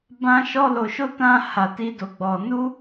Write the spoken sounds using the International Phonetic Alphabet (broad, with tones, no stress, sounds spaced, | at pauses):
b ã˦ ʃ ɔ˦ l o˧ ʃ o˦ t ã˦ h a˧ t i˦ d o˧ ɡ͡b ɔ˧ n u˦